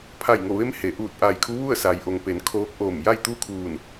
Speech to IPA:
pʰa˧˩jŋo˧˩ʋe˧˥m he˩˧ʔuː˧˩t̚ ʔa˧˩j kʰu˧˥ʋu˥˨ə̯sa˩jʔo˩ŋ pe˩˧n kʰoː˧˥k̚ʔoː˧˩m ja˥˨jt̪u˥˨kʰuː˧˩n

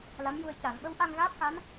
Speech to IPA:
la˧˥mju˧ə̯ ca˨˩˨ŋ ɓə˧˥wʔa˧ŋɣaː˦˥p̚xa˧˥n

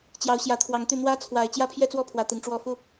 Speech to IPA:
t͡ɕjɑ˨˦ʊ̯ɕjä˨˦ t̪ʰwɑ˨˦ŋt̪y˧ n̪wä˦t͡sʰwa˨˩ɪ̯ t͡ɕjä˦pʰjɛ˦t͡swɔ˦pʰwä˨˩ t̪i˨˦ŋʈ͡ʂwɔ˥˨ fu˥˨

